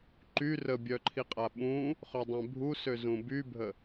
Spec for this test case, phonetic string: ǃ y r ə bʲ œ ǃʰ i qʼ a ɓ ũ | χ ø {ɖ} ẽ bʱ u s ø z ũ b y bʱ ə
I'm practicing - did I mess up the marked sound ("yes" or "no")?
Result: yes